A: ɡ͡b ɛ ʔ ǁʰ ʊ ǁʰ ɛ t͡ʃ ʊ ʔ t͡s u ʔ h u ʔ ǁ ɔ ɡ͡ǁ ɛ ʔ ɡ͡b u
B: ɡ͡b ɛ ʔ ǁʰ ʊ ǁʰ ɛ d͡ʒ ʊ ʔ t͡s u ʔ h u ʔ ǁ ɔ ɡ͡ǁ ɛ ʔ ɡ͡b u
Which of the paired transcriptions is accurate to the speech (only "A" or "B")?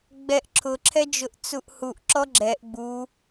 B